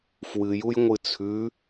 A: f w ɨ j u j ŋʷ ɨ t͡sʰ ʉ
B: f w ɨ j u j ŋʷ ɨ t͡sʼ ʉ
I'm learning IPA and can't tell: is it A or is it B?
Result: A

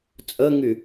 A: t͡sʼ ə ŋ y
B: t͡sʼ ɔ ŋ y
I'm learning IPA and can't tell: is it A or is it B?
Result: A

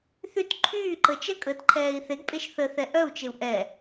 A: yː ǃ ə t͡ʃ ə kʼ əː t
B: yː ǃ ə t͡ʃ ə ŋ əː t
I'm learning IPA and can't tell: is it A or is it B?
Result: A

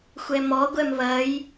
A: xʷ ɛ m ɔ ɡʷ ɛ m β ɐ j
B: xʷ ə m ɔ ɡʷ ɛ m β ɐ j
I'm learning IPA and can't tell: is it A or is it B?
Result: A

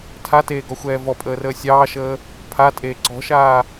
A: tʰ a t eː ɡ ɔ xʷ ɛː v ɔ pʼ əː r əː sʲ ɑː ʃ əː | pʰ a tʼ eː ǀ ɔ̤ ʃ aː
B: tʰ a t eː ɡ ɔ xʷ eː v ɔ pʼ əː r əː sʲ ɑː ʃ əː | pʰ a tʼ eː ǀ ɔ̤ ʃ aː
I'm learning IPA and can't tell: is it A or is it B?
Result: A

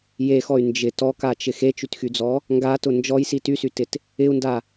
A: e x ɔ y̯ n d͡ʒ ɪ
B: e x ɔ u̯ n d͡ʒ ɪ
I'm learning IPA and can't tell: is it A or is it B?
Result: A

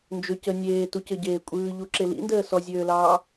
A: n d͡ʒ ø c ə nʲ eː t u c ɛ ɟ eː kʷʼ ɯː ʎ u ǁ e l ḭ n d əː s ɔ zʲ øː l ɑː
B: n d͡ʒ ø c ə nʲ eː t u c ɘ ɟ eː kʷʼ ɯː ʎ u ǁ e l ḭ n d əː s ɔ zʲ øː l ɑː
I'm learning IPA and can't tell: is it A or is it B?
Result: B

